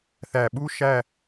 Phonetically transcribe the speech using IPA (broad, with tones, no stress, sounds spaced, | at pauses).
θ æ˧˩ ɓ u˥ ʃ æ˥˧